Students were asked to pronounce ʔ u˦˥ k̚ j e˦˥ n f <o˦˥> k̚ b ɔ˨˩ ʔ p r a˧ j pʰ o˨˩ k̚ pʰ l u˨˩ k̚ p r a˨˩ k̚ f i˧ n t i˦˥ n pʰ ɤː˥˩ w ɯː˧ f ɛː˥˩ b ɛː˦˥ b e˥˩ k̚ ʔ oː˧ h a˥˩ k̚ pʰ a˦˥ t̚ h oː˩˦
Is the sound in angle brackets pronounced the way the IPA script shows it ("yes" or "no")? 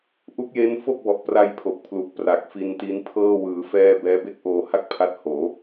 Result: no